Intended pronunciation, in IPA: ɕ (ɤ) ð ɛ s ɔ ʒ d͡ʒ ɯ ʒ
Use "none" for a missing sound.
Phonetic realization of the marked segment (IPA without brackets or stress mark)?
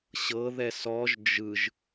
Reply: ɤ